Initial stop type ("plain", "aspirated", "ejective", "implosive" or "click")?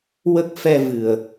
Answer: plain